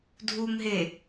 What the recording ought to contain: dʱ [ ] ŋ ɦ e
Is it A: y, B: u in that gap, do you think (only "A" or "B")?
B